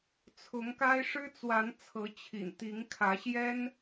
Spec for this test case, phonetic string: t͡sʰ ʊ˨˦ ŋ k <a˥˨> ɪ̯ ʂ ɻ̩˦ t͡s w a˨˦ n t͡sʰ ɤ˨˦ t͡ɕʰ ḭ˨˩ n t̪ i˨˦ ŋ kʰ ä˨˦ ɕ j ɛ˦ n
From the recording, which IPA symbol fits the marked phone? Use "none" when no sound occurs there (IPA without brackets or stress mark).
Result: a˦